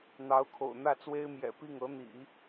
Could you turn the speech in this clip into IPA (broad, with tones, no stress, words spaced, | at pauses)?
n̪ɑ˧˥ʊ̯kʰo̰˨˩ʊ̯ n̪ä˥˩t͡swe˥ɪ̯mjɛ̰˨˩ pi˥˩ŋɤ˧˥n̪ḭ˨˩˦